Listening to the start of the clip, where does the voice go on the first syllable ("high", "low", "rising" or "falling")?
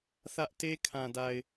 high